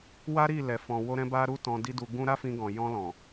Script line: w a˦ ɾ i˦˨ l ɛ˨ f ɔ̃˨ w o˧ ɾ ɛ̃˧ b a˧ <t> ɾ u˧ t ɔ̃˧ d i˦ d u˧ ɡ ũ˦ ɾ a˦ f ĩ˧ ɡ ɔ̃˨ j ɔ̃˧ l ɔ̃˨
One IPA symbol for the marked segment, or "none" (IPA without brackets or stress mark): none